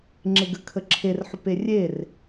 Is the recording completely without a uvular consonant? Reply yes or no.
yes